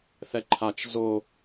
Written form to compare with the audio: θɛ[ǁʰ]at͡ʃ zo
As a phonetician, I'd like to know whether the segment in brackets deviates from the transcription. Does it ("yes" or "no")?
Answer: yes